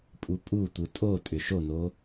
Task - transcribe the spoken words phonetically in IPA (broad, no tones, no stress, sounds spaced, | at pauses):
pʼ u pʼ u tʷ ɯ tʼ o tʼ ʏ ʃ o n o